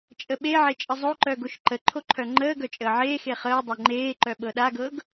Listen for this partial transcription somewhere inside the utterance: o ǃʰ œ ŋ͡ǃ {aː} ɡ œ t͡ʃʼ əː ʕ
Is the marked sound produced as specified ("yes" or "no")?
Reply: no